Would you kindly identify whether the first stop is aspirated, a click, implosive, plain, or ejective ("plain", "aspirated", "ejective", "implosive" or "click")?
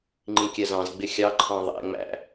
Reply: click